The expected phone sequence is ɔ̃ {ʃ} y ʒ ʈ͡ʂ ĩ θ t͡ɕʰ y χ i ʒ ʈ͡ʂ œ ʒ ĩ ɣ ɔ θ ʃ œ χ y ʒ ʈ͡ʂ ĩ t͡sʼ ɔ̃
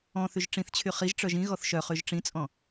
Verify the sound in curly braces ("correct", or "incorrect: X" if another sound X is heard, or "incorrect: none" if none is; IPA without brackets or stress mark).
incorrect: θ